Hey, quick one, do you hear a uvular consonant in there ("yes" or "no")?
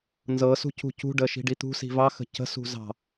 no